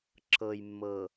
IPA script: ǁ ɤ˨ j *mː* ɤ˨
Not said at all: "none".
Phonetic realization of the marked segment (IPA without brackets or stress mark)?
mː